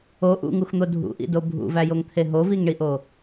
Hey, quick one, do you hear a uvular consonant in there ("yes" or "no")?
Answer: no